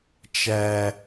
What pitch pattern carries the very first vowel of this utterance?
high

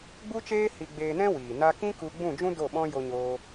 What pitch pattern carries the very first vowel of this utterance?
high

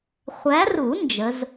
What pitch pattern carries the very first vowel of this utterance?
rising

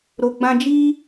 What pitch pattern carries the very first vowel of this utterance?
low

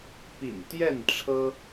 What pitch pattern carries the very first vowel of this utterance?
low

